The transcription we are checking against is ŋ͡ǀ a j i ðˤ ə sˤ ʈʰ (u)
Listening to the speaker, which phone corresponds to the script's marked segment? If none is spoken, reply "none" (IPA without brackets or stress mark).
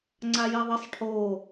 o